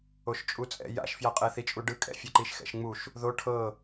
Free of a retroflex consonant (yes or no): no